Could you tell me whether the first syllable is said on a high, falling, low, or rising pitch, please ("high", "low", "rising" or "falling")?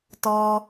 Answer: high